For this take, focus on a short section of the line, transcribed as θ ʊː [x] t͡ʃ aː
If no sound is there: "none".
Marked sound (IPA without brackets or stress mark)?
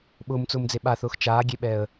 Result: x